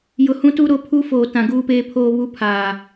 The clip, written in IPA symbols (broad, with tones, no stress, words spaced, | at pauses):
jʊ˨hũ˦tu˦ ɾo˦ pʰu˦ foː˨tã˨ ɡuː˦peː˦pʰoː˦ βu˦pʰaː˨